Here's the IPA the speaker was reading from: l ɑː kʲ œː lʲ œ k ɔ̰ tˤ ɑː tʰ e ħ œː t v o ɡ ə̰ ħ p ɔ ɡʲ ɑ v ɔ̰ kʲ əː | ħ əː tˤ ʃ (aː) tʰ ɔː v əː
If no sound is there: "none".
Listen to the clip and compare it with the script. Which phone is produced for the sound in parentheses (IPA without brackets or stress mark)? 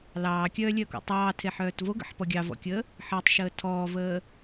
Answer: əː